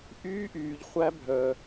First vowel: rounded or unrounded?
rounded